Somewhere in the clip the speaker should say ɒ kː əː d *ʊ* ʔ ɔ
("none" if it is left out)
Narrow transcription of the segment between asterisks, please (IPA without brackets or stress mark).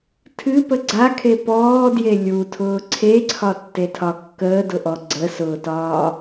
ʊ